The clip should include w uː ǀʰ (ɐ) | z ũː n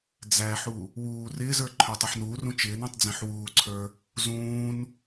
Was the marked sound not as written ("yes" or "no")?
yes